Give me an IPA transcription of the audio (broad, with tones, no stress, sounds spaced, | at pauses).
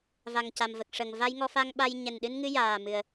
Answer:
v a˨˩ ŋ c a˨˩ m v ə˨˩ k̚ ʂ ə˨˩ ŋ v a˧ j ŋ ɔ˧ f a˧ ŋ ɓ a˧ j ɲ ɛ˨˩ n ɗ ɨ˧ n ŋ ɨ˧ j aː˨˩ m ɨ˨˩ ə̯